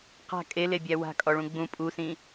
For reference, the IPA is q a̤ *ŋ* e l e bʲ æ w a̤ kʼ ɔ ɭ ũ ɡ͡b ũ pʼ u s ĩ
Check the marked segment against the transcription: incorrect: kʼ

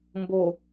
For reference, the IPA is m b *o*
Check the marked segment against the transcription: correct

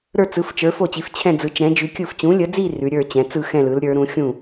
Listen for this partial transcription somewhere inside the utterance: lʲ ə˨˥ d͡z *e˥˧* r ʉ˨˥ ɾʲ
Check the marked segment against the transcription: incorrect: i˥˧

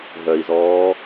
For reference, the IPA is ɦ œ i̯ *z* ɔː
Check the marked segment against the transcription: correct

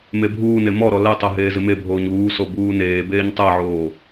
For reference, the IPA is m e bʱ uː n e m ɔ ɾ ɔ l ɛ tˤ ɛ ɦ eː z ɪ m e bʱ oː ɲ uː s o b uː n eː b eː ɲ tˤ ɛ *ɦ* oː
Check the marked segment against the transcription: incorrect: ʕ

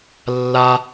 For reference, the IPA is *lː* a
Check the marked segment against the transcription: correct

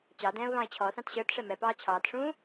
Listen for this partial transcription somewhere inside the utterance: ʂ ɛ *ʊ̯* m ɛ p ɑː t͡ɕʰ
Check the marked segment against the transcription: incorrect: none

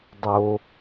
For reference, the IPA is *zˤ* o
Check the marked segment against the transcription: incorrect: dˤ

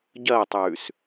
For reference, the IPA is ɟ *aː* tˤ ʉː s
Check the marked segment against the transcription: incorrect: ɐː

